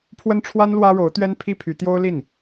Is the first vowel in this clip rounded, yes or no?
no